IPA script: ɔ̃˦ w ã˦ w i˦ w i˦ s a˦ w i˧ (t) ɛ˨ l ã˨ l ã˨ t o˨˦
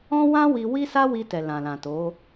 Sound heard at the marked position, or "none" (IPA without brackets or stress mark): t